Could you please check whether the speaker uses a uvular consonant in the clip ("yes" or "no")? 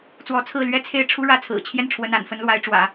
no